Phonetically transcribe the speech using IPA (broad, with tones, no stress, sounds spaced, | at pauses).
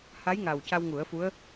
h a˧˥ j ŋ a˨˩ w c a˧ w ŋ u˨˩˦ ə̯ f u˧˥ ə̯